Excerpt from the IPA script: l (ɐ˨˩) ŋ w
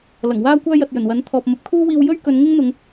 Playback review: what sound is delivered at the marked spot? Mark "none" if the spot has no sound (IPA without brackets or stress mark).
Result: ɐ˨˩